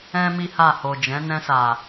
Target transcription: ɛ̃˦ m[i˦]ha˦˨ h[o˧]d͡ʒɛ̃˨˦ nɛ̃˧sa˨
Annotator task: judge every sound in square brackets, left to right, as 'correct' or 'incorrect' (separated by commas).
correct, incorrect